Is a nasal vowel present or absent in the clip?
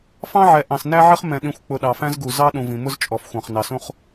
present